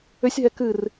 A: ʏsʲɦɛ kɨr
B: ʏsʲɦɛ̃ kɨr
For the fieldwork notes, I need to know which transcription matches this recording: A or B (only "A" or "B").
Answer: A